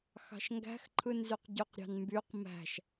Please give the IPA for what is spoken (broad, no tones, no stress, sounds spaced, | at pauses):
x ɑ̤ ʃ ŋ ɡ æ̤ x ǃʰ ɯ n z y q ɟ y q ɾʲ ɑ̤ n m b y q m æ̤ ʃ